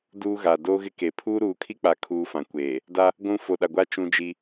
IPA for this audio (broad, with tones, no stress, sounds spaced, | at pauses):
d uː˦ ɣ a˨ d o˦ ɣ ɪ˦ k e˨ pʰ uː˦ ɾ uː˨ kʰ i˦ k͡p a˨ kʰ uː˦ f ã˨ kʷ eː˨ | d a˦ | ɡʷ ũ˦ f o˨ ɗ a˨ ɡʷ a˦ t͡ʃ ũ˦ d͡ʒ i˦